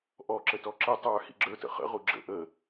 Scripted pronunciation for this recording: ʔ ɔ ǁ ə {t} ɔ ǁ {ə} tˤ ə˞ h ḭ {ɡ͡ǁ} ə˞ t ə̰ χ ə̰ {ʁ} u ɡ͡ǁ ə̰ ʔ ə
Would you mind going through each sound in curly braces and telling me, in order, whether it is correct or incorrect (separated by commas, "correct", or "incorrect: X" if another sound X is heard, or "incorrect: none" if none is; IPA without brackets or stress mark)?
correct, correct, correct, correct